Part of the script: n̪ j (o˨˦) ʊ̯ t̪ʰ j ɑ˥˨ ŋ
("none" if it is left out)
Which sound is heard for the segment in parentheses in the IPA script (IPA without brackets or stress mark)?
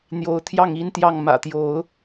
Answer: o˨˦